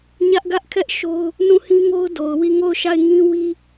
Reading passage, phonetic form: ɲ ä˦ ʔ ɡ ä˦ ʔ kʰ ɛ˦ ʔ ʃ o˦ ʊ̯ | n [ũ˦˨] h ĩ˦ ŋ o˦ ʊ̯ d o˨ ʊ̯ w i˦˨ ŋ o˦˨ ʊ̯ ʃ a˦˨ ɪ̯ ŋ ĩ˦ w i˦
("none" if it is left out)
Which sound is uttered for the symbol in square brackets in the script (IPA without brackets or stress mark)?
ũ˦˨